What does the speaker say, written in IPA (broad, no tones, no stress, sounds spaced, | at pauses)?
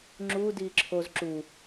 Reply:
ŋ͡ǁ u d iː ǁʰ o z ǁ u